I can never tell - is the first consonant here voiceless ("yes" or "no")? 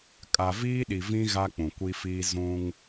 yes